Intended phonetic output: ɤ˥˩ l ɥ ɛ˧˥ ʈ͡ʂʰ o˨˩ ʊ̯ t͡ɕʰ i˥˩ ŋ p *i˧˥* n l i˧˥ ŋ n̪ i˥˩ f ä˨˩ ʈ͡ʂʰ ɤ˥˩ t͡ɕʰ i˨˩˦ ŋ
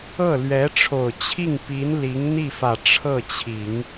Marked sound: correct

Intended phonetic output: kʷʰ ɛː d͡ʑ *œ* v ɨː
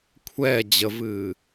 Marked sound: incorrect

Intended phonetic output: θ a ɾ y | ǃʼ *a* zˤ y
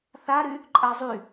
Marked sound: correct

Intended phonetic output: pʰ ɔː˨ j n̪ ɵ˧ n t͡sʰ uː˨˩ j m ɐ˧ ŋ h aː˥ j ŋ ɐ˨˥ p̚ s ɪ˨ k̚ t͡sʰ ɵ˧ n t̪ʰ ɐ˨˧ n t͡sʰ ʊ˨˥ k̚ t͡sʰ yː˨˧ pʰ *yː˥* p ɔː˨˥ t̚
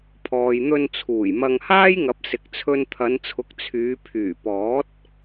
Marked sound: incorrect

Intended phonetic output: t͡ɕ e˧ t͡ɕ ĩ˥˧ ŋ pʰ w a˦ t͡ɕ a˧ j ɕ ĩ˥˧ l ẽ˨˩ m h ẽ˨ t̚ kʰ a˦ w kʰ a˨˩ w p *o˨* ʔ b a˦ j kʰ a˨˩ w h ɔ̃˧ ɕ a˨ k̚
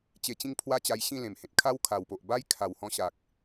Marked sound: correct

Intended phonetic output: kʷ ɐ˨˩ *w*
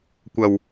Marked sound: correct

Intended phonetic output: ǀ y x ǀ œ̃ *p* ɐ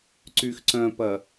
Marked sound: correct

